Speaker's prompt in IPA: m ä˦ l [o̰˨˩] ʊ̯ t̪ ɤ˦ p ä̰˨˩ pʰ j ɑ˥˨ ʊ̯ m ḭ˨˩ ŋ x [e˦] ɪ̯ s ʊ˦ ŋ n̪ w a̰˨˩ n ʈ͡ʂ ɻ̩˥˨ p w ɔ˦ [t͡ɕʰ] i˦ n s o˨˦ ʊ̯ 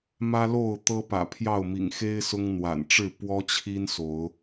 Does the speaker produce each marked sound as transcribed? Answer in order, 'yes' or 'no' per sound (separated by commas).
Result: no, yes, yes